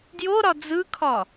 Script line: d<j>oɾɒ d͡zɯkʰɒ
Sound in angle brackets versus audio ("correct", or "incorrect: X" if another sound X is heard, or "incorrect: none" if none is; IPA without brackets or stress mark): correct